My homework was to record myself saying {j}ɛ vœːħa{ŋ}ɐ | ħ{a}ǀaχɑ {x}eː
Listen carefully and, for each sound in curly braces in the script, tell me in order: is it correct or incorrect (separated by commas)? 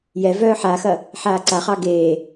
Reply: correct, incorrect, incorrect, incorrect